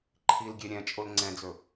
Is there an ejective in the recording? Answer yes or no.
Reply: yes